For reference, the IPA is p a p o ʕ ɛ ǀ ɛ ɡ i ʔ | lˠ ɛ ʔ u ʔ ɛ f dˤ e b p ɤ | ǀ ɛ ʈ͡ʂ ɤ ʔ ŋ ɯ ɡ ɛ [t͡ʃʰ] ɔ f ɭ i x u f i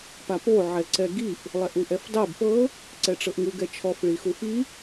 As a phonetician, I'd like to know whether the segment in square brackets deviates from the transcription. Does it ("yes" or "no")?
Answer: no